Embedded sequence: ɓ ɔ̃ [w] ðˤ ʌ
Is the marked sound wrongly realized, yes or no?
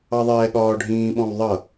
no